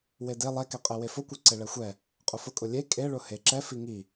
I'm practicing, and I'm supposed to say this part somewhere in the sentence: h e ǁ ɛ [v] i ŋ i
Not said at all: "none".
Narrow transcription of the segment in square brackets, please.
f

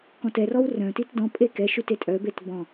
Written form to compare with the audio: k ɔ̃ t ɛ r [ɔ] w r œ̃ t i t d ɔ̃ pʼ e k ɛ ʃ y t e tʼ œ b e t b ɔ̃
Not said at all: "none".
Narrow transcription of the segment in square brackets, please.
ɔ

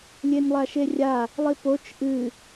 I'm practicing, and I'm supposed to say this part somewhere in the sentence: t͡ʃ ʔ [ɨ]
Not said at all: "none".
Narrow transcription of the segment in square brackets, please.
ɨ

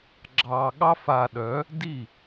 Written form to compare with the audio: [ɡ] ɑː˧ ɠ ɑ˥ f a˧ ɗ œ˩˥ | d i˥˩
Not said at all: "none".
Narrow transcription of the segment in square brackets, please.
ɡ͡ǁ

